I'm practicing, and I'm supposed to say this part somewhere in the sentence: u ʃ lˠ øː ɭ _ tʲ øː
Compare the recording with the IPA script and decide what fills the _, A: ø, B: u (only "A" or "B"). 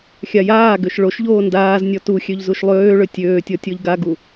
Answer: A